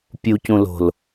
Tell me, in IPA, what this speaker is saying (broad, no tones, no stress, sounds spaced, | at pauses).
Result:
pʲ u c ũ l o̤ l